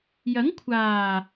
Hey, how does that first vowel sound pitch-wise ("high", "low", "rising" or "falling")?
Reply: rising